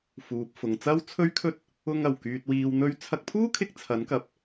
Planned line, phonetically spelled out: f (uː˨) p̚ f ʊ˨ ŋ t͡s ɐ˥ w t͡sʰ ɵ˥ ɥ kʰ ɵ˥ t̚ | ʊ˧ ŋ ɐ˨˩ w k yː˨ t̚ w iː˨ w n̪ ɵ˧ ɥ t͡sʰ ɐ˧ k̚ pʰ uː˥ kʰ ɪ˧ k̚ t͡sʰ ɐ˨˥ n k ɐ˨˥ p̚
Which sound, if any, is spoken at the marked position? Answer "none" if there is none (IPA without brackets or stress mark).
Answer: uː˨